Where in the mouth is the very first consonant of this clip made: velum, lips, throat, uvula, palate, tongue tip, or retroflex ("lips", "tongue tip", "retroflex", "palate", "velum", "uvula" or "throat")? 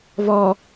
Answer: lips